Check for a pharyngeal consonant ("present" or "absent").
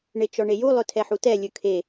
present